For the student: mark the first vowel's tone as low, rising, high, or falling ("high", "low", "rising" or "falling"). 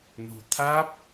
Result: low